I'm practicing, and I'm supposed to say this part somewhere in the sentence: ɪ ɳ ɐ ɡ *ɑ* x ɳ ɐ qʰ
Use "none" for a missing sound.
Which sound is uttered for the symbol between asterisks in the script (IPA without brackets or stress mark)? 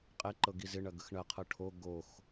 ə